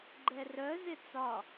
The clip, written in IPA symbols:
ɡ͡ǃ ɛ r œ z ɪ t͡s ɒ

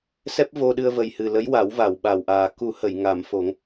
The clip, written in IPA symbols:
s ɛ˦˥ p̚ v o˧ ɗ ɨ˧ ə̯ v ə˨˩ j h ɨ˨˩ l ə˧˥ j w a˨˩˦ w v a˨˩˨ w ɓ a˨˩ w ʔ aː˨˩ k u˨˩˦ h ə˨˩˨ j ŋ a˨˩˨ m f o˨˩˦ ŋ

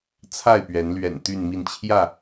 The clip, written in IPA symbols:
t͡sʰ a˥˨ ɪ̯ p ɥ ɛ˨˦ n l ɥ ɛ̰˨˩ n t̪ y˥˨ n m i˥˨ n t͡ɕʰ j ä˥˨

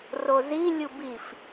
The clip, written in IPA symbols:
r o z i lʲ u b i f

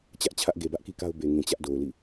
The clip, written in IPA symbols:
t͡ɕ ä˦ ʔ t͡ɕʰ ä˦ ʔ ɡ e˨ b ä˦ ʔ k i˦ k a˦ ʊ̯ b e˨ ŋ ĩ˨ t͡ɕ ä˦ ʔ d o˨ ʊ̯ l ḭ˦˨

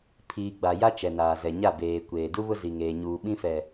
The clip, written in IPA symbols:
pʰ iː˨ ɡ͡b a˨ j a˦ t͡ʃ ɛ˨ n aː˨ z ɛ˨ ɲ a˦˨ b eː˨ kʷ eː˨ d u˦ β ʊ˦ z i˨ ŋ eː˨ ɲ uː˨ ɓ ĩ˦ f ɛ˨

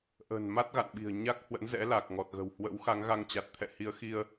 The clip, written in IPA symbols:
ʔ ə̤˨˩ n m a˦˥ t̚ ɣ a̰˧˨ n ɓ i̤˨˩ ə̯ ɲ a˦˥ k̚ h w ə̰˧˥ n z ɛ̰˧˥ l a˨˩ k̚ ŋ ɔ˨˩ t̚ ɣ ə̤˨˩ w h w ə̰˧˥ w x a˨˦ ŋ ɣ a˧ ŋ t͡ɕ a˨˩ t̚ t̪ʰ ɛ̰˧˨ h i˨˦ ə̯ x i˧ ə̯

